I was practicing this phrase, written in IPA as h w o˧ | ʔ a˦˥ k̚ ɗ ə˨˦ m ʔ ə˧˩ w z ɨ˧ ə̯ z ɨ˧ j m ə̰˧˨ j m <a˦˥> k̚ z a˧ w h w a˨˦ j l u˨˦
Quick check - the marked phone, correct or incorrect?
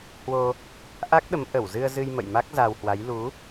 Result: correct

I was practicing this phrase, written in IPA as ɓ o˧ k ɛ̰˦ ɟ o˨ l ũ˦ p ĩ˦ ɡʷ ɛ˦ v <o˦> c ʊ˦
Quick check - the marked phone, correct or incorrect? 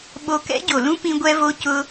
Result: correct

